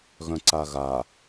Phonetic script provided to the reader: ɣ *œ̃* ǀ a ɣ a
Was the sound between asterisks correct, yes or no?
yes